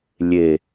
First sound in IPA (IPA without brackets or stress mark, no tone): lʲ